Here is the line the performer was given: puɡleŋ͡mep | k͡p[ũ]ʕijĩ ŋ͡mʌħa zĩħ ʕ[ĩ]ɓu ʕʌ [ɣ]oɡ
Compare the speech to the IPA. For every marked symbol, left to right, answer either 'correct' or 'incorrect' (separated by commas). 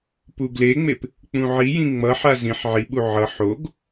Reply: correct, incorrect, incorrect